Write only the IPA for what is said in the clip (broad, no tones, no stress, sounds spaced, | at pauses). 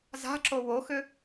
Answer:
z a̤ ǁ o w o x ʏ